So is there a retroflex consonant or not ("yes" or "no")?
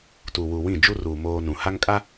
no